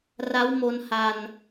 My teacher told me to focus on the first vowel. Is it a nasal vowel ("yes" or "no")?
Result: no